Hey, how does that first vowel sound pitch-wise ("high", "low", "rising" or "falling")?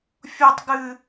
high